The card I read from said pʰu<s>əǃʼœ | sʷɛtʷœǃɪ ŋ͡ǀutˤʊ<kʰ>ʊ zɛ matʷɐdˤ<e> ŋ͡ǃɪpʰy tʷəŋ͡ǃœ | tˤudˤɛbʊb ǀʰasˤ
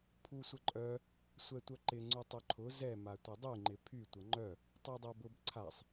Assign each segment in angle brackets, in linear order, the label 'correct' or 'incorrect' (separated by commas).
incorrect, incorrect, incorrect